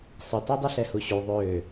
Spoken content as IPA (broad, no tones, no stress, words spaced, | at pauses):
sˤətu dˤəɬɛhuɕu ðˤø